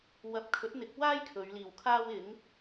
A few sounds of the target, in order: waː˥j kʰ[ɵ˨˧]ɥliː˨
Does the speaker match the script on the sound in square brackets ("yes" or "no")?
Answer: yes